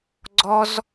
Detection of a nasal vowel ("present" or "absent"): absent